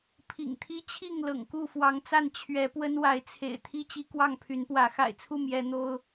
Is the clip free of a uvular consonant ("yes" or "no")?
yes